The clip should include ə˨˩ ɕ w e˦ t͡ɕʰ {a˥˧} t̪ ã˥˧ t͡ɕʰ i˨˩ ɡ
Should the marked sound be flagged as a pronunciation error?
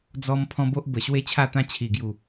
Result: no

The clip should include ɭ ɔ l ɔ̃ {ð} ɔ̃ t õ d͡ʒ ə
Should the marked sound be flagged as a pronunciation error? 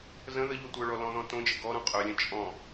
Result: no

